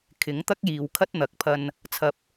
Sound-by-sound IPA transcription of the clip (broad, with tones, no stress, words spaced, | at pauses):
kʰɪ˨˥ŋt̪ɐ˥k̚jiː˨wkʰɐ˥t̚ n̪ɐ˨k̚pʰɐ˧n | t͡sʰɐ˧p̚